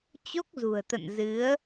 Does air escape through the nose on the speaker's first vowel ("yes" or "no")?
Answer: no